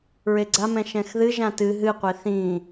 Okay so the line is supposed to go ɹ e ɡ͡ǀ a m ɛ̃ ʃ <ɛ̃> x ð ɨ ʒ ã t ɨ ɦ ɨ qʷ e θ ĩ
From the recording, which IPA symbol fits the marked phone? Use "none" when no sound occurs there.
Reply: ɛ̃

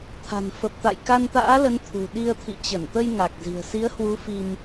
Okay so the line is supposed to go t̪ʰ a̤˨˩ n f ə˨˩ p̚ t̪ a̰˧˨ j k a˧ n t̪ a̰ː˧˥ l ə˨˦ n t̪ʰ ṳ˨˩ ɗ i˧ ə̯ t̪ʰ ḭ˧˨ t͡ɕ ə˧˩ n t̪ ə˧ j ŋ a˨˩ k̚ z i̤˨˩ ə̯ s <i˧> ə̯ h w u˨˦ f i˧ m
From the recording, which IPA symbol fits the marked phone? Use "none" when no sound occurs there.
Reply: i˨˦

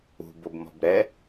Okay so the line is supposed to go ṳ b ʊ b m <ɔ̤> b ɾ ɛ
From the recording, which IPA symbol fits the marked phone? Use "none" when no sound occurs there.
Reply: ɔ̤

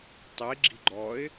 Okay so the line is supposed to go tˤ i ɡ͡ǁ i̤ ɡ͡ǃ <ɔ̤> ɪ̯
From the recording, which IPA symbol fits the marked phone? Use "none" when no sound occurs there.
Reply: ɔ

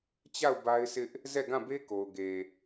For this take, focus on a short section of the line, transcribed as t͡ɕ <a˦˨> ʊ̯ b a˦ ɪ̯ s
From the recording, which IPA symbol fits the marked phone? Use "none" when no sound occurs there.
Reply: a˦˨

